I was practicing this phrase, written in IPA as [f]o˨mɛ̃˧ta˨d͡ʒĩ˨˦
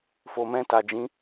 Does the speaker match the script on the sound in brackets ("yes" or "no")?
yes